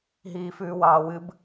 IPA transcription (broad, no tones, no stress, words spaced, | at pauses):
ɦiːfʉːwɑːwɨb